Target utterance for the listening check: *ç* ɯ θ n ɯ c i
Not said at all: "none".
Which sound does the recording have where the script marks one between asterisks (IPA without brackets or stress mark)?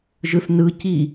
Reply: ʒ